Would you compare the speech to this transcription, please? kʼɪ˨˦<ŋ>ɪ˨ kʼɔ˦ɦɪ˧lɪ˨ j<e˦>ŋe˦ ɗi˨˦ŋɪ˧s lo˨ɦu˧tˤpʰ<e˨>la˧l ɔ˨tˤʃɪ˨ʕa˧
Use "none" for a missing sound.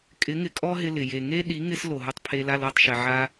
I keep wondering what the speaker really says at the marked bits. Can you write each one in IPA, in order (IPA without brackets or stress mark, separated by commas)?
ŋ, e˨, e˧